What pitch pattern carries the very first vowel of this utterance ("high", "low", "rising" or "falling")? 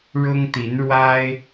high